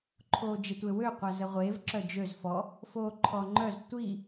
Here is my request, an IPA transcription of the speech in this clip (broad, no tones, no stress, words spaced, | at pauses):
ǃʰoːd͡ʒətʷewø qʷazəʁʷeːv ǁœd͡ʒøz fɔ | foːǃʰɔŋ͡ǃœz tʷi